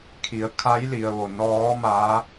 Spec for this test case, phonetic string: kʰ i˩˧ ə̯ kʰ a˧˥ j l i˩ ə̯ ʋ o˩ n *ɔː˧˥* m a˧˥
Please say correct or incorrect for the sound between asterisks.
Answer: correct